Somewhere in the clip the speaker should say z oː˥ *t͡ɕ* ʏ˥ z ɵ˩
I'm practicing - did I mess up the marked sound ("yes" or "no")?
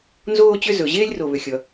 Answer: no